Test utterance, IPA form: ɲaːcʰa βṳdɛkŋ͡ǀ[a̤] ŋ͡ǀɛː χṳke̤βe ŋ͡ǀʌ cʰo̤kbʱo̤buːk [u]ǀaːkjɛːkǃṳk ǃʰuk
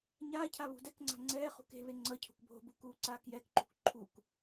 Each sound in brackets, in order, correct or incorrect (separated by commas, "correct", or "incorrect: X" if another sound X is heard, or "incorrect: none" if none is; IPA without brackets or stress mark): correct, incorrect: uː